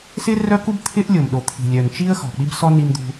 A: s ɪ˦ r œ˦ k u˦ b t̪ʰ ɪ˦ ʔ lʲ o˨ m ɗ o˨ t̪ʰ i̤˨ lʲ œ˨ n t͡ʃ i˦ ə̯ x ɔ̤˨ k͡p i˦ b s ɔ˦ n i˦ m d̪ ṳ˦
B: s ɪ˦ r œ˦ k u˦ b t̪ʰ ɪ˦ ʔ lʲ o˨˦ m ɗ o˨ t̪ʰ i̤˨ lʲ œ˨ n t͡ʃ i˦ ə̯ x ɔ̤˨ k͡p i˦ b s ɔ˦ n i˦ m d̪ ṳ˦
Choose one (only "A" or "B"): A